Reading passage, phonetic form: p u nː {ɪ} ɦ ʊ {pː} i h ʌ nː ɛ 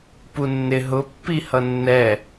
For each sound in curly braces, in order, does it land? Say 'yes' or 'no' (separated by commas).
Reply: yes, yes